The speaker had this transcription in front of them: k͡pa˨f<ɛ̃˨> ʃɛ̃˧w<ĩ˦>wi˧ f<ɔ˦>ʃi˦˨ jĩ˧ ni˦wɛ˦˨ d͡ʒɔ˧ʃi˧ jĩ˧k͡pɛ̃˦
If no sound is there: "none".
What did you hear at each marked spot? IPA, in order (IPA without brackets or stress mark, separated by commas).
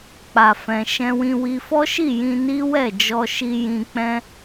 ɛ̃˨, ĩ˧, ɔ˦